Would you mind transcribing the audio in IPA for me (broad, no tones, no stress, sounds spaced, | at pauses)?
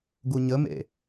ɡ u ɲ ə m ḛ